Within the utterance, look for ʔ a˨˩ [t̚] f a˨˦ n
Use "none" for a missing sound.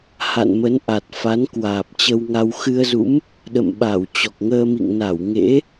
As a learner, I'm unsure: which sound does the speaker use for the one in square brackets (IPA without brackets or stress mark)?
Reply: t̚